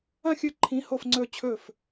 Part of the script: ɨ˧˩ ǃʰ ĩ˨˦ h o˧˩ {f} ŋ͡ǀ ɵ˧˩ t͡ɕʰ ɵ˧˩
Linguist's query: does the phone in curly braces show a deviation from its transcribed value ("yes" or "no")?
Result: no